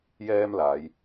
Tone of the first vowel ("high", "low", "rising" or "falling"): high